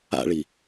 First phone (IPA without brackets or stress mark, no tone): a̰